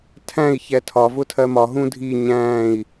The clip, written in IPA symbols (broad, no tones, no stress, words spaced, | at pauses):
tʰæ̃i̯ çɛtʰɒ vʊtʰɜmɒ ɦũdʱi ɲæ̃i̯